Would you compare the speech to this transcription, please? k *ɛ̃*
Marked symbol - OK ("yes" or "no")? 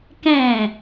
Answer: yes